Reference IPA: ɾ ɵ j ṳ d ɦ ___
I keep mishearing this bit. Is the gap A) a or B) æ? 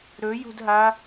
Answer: A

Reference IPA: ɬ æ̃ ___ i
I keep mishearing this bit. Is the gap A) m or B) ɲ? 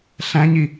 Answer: B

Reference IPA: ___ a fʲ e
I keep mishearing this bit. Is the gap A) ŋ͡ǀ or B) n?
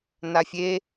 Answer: B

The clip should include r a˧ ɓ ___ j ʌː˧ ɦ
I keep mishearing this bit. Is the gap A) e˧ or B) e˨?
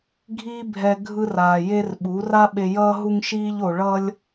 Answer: B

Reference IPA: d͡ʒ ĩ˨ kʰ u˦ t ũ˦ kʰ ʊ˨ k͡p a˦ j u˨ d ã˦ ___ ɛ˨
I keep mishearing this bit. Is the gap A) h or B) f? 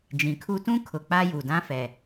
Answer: B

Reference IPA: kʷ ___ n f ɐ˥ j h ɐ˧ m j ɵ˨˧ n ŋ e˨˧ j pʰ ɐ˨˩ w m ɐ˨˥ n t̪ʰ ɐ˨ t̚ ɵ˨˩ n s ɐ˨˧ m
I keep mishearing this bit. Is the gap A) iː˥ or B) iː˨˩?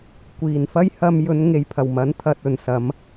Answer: B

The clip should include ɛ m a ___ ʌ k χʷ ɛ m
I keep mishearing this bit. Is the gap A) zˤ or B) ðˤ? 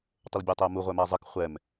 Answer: A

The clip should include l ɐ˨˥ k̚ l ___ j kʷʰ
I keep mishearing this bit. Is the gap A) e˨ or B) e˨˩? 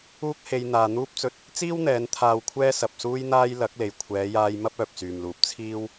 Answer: B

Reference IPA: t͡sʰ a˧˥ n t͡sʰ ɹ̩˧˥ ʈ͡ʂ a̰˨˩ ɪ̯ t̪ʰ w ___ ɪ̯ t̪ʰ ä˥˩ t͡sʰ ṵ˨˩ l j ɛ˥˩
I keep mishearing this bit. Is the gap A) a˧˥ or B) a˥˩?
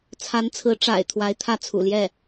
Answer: A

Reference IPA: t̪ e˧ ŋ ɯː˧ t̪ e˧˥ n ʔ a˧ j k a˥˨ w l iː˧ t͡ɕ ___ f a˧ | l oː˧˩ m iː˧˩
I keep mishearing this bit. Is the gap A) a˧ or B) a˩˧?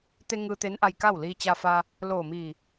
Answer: A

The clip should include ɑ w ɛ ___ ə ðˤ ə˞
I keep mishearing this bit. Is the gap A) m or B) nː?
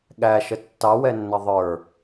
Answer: B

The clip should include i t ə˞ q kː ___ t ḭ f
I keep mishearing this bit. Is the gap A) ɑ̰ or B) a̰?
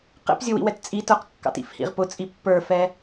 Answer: A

